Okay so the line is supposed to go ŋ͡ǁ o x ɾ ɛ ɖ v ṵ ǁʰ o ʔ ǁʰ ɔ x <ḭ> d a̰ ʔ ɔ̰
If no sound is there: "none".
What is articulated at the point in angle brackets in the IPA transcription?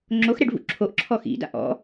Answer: ḭ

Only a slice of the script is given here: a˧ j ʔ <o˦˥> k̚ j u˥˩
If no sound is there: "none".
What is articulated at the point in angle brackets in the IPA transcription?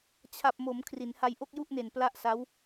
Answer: o˥˩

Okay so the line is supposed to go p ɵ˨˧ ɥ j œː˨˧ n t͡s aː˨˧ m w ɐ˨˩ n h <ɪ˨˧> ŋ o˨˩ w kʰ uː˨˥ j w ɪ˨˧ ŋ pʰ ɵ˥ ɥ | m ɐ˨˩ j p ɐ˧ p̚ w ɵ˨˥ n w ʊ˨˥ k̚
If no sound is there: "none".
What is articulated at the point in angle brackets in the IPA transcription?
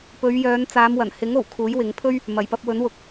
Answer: ɪ˨˥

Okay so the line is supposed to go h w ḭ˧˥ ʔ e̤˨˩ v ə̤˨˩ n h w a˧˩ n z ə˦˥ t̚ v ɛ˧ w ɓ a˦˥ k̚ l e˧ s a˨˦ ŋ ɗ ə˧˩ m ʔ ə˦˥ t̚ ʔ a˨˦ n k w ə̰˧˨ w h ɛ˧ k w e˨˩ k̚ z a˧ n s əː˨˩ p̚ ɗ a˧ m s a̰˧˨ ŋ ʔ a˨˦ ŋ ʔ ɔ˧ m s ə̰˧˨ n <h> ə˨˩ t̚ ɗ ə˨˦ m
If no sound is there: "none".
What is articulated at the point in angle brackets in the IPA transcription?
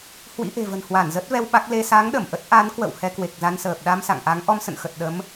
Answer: x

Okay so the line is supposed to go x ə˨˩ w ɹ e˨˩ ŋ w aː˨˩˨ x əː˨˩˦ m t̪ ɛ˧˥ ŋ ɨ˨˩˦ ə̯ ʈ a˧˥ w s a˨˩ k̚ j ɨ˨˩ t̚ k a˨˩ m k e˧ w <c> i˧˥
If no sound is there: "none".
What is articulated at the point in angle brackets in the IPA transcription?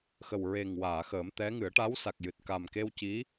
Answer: c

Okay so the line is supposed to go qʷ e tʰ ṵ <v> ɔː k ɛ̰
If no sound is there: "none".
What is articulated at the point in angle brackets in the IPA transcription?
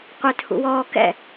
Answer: w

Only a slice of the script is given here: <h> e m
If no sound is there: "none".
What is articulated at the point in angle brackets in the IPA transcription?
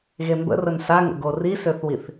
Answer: ɣ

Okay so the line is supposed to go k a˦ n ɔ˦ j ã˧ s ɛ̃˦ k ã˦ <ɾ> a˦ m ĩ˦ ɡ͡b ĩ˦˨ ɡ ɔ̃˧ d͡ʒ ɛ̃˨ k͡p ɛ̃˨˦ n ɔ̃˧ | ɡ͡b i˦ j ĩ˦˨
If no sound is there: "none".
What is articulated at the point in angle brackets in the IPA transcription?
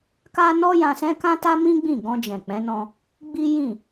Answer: t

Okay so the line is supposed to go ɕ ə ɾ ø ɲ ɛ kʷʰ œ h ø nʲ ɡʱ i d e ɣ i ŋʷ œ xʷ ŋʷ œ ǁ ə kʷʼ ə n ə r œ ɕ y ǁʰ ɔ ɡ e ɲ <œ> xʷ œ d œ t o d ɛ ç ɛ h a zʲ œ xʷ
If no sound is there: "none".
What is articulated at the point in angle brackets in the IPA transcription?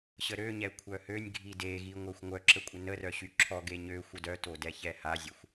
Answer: ø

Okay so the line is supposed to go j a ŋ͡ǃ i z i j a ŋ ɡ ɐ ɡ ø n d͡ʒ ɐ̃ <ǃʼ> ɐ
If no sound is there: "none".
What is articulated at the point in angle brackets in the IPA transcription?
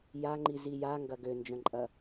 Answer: ǃʼ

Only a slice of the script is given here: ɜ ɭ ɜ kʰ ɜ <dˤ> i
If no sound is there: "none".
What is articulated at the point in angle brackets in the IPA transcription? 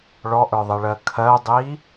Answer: dˤ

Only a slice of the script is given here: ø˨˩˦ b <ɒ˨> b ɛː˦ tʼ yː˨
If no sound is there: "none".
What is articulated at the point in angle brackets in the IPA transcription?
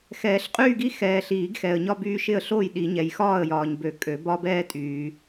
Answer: ɒ˦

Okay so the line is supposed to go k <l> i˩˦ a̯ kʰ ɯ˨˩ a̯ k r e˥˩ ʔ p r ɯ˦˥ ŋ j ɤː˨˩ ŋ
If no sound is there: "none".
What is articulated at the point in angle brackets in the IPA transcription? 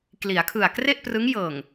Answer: l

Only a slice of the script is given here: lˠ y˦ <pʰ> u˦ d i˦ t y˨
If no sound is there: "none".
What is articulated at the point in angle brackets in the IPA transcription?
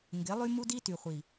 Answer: m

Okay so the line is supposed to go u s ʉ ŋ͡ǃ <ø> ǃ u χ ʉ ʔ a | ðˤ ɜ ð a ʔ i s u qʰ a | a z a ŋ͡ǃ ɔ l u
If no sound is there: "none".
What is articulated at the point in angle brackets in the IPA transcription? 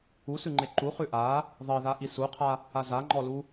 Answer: e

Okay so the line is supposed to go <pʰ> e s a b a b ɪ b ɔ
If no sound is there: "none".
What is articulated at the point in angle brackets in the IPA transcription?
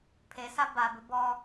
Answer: pʰ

